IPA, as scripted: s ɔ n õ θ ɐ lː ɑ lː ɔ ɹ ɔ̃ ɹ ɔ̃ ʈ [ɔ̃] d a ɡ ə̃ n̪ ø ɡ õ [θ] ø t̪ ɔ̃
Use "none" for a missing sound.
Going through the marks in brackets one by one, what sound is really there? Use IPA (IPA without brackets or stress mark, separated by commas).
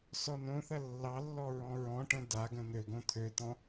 ə̃, t̪ʰ